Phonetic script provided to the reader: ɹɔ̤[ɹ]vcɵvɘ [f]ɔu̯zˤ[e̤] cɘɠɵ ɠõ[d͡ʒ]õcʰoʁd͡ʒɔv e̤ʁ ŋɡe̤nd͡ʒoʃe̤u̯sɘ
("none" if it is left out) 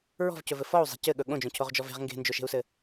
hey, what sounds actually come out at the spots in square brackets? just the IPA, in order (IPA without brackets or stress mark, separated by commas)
none, f, e̤, d͡ʒ